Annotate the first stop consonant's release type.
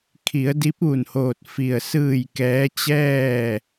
aspirated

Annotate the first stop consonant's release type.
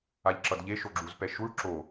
click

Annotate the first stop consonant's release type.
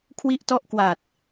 aspirated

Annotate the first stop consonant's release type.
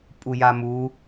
ejective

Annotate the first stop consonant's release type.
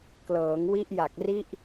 plain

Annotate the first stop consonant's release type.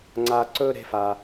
click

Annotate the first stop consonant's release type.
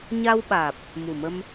implosive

